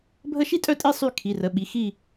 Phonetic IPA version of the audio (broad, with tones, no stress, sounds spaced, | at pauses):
bʱ ə˥˨ ʃ i˥ tʼ œ˥˨ tʼ i˥˨ sˤ y˥˨ kʰ i˩˧˩ r ə˩˧˩ ɓ i˩˧˩ x i˥˨